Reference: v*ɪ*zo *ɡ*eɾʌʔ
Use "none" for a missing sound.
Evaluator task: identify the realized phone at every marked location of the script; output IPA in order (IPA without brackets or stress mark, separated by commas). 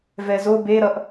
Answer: ɛ, b